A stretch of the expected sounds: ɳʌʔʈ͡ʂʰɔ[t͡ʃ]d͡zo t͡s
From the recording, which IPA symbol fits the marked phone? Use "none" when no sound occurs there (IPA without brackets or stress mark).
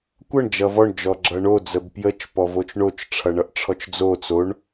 t͡ʃ